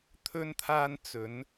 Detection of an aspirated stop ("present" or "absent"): present